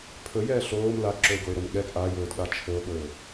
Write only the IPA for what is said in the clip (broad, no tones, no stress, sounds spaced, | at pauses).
pʰ ɵ j ɛː ɬ oː m l a ɡ ǁ ɵ e̯ ɡ o e̯ ɾ o m ɠ ɛ ɡ ʔ a j ɵː d ɠ a t͡ʃʰ ɵ o̯ ɠ ɵː